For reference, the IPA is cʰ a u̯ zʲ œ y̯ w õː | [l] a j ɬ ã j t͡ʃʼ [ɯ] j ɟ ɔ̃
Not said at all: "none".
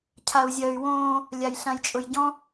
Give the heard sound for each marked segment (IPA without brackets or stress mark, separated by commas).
lʲ, ʊ